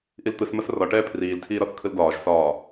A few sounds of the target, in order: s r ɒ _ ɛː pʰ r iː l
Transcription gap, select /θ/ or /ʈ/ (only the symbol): ʈ